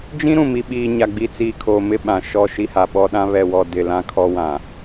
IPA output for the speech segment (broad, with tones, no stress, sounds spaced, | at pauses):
d͡ʒ ĩ˦ ɾ ũ˨ m i˨ ɓ iː˨ ɲ a˨ ɡ͡b i˨ t͡s iː˨ kʰ oː˨ m ɪ˦˨ ɓ ã˨ ʃ ɔ˦˨ ʃ i˦ h a˨ ɓ ɔ˦ ɗ ã˦ β ɛ˨ w ɔ˨ d ɪ˨ l ã˦ kʰ ɔ˦ w ã˨